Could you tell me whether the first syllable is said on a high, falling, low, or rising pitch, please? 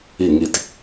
falling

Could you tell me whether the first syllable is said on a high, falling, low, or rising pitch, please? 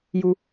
high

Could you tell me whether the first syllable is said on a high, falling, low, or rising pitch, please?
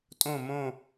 falling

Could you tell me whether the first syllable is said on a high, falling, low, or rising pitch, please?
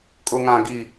high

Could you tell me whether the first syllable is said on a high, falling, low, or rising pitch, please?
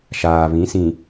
low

